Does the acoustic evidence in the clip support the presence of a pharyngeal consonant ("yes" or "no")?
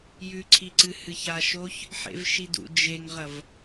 yes